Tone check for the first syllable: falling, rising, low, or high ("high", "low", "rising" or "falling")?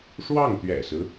falling